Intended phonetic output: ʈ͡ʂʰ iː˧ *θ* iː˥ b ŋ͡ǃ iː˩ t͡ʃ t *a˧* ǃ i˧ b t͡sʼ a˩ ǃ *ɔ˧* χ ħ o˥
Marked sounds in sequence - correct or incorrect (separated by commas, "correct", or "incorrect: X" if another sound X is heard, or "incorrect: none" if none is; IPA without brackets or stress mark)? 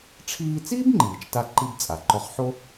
incorrect: t͡s, correct, correct